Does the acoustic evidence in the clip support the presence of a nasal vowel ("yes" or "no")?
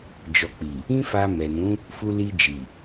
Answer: yes